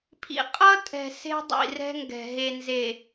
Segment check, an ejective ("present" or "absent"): present